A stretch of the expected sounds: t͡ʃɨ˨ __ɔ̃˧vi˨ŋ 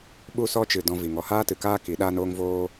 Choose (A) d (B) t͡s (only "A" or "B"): A